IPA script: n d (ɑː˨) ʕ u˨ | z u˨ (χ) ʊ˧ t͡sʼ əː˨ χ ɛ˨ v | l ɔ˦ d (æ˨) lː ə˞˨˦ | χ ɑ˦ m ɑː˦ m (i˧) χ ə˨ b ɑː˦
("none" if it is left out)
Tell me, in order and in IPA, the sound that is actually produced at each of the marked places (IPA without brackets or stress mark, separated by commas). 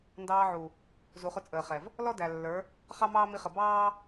ɑː˧, χ, æ˨, i˧